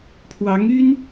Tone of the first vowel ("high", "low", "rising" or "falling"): rising